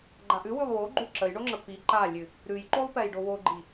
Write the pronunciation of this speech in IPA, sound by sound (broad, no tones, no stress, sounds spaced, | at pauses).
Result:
ɡ͡ǃ a ʔ ʉ w ʉ lˠ w o ɡ͡ǃ ʉ ǁ ə j ɳ o ŋ͡ǁ ə p i ǃ a lʲ ʉ | ɾ ʉ j ǃ o lˠ p ɛ j ɖ o w o ɡ͡ǃ i